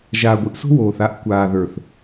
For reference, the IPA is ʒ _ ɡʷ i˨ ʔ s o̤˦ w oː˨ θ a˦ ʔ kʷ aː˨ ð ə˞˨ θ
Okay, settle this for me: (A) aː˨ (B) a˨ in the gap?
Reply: A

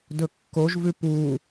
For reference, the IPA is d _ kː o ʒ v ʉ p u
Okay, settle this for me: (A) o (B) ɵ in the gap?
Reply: B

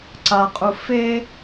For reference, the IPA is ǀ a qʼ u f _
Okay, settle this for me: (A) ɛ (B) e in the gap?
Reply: B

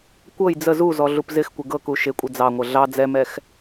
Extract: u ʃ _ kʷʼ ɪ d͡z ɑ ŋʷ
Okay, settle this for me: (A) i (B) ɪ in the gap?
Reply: B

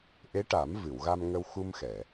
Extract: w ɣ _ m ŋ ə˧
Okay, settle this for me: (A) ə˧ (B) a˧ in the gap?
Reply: B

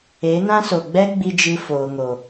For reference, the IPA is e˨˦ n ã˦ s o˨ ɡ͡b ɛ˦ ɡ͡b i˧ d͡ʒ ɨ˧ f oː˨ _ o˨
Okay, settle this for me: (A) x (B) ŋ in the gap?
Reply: B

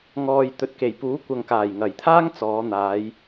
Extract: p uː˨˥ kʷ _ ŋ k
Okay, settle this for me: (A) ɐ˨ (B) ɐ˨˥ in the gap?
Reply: A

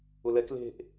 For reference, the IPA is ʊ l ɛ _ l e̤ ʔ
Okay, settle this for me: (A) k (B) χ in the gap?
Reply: A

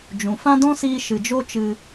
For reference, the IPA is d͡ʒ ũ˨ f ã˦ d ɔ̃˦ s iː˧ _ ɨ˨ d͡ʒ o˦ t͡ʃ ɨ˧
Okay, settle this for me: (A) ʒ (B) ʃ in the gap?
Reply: B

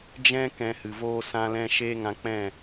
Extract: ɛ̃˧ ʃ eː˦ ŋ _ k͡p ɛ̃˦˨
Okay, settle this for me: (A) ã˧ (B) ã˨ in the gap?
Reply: A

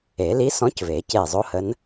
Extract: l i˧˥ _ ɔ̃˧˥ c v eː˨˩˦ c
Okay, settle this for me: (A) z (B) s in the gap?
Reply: B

